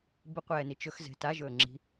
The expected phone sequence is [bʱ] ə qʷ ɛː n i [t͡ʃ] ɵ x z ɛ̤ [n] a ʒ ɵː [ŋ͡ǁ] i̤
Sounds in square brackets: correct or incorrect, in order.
incorrect, correct, incorrect, correct

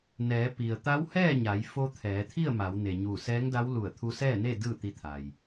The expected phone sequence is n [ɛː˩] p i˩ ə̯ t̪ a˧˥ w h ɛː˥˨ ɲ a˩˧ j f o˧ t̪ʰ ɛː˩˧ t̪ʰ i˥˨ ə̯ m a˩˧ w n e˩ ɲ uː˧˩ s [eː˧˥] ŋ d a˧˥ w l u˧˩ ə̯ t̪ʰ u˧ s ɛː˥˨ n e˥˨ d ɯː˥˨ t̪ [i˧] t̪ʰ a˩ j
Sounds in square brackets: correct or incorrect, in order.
incorrect, incorrect, correct

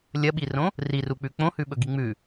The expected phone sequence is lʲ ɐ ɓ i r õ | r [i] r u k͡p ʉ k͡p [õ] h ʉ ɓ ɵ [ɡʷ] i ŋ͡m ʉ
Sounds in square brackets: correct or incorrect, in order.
correct, correct, incorrect

